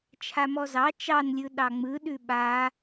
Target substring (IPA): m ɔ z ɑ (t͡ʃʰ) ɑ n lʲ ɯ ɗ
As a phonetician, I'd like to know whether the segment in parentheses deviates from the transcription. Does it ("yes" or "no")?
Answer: yes